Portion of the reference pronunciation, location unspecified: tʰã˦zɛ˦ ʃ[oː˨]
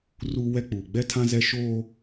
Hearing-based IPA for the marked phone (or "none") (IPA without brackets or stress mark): oː˦